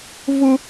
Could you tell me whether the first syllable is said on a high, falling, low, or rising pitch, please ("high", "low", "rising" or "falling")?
high